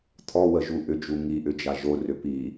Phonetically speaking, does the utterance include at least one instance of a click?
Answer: no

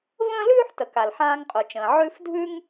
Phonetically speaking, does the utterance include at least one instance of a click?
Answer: no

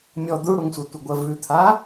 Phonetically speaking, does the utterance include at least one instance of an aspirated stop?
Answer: yes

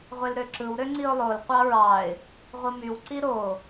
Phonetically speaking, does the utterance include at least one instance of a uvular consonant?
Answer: yes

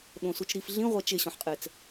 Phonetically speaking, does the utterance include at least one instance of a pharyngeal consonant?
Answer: yes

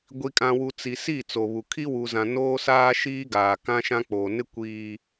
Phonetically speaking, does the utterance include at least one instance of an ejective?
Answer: yes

